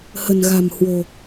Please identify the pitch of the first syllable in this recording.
low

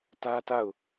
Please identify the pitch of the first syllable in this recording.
high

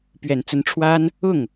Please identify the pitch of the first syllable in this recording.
low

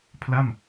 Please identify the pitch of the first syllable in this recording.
falling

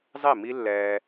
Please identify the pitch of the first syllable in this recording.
falling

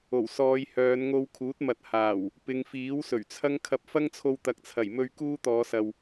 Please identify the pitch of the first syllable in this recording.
low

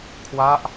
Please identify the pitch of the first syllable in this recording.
falling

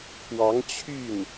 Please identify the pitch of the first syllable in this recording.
rising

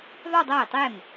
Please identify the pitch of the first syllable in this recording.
falling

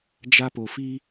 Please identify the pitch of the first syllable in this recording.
high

